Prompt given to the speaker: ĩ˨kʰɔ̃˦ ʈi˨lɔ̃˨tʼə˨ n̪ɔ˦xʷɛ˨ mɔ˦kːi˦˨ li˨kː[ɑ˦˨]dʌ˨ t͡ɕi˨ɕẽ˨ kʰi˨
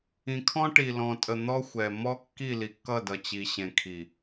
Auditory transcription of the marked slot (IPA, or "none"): ʌ˦˨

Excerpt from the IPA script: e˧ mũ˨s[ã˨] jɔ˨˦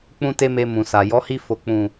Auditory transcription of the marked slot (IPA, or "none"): a˨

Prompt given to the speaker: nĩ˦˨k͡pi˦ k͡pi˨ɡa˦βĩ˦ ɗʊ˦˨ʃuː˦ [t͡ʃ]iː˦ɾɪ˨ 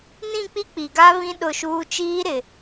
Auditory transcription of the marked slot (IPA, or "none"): t͡ʃ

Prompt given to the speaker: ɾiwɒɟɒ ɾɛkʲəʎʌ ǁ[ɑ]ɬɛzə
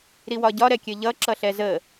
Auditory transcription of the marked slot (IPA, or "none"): ʌ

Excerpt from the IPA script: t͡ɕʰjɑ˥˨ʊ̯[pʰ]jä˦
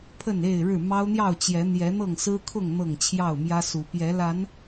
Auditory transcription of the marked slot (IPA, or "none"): m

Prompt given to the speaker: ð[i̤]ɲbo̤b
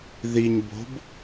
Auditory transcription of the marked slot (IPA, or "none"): i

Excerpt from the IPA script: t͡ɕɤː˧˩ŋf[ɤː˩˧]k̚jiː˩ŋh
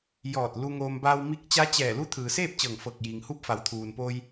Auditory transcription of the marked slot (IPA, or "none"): ɤː˧˩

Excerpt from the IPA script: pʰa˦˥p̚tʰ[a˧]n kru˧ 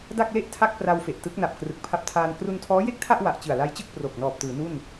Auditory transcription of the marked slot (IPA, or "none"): aː˧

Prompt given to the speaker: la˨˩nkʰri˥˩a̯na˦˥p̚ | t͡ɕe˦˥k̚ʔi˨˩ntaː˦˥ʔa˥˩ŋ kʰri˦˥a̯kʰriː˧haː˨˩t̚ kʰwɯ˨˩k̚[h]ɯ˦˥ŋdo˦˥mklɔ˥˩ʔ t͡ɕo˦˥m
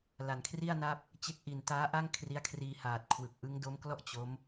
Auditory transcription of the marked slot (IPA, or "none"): ʔ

